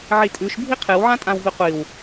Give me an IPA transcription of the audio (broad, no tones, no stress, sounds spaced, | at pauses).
ʕ i tʼ ʉ ʃ bʱ i qʰ ɨ w ʕ ã tʼ ã w v i qʷ i w